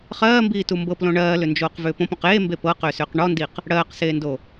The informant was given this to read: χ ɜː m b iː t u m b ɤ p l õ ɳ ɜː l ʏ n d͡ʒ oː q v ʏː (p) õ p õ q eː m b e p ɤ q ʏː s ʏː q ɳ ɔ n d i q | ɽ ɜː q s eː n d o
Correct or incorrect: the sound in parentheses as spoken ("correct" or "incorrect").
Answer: correct